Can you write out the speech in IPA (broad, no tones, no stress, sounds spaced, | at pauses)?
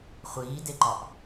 χʷ iː d e ǃ ɒ ʔ